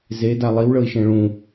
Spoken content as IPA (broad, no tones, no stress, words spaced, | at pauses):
zeda lˠiwɭɤi̯ʃẽ ɭũ